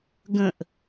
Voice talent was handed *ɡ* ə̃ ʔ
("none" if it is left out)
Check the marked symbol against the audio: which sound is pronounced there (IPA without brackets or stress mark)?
ɡ